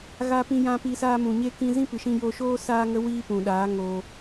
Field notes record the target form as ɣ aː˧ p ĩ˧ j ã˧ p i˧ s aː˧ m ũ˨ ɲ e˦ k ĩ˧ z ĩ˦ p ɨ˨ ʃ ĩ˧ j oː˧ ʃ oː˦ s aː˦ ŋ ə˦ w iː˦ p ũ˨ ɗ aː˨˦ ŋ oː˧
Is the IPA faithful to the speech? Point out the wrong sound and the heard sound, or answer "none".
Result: none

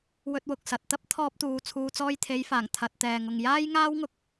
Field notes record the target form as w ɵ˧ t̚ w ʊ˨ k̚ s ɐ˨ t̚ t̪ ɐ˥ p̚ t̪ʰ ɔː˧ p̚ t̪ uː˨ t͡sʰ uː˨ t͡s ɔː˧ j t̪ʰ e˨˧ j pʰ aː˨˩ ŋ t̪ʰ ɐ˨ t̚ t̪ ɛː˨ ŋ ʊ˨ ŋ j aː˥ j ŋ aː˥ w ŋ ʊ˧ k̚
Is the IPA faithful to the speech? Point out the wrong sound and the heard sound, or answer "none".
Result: pʰ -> f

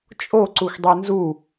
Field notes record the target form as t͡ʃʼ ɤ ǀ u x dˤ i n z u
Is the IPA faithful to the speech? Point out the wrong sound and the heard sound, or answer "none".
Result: ɤ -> o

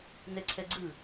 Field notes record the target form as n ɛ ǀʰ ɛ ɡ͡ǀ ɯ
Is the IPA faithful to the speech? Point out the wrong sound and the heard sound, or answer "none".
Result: none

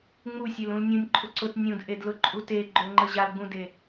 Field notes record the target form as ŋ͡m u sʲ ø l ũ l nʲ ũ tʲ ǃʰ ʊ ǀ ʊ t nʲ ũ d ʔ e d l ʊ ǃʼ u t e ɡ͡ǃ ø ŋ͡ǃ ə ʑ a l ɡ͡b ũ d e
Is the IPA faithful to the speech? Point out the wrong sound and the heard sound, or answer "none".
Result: tʲ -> nʲ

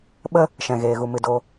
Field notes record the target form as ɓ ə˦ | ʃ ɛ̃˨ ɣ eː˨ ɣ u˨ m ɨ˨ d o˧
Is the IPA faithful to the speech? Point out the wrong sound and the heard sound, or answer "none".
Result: none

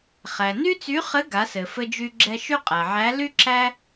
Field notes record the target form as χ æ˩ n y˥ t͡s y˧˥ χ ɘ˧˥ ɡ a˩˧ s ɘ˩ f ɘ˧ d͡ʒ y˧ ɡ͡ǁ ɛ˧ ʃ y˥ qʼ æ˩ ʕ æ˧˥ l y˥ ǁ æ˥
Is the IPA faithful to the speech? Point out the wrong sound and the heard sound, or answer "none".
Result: none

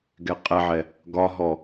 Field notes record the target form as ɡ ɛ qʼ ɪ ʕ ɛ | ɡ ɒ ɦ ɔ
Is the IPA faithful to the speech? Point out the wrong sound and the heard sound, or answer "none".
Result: ɪ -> ɛ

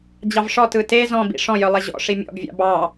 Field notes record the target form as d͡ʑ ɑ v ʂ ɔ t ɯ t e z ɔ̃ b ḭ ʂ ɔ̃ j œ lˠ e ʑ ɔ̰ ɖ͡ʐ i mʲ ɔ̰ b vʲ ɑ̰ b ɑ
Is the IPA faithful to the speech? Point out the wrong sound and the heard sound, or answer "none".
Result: ɖ͡ʐ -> ʂ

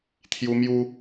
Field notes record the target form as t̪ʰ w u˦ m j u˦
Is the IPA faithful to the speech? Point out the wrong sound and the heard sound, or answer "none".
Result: w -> j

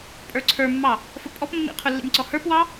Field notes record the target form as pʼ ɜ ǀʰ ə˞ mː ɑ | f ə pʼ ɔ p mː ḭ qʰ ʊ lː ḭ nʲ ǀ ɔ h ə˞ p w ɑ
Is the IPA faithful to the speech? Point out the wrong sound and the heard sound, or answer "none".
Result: ɜ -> ə˞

